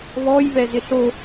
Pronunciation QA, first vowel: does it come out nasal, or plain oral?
oral